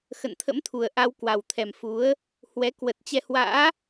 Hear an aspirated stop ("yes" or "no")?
yes